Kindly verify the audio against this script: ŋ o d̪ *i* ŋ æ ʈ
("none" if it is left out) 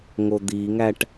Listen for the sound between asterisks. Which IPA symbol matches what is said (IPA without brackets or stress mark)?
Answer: i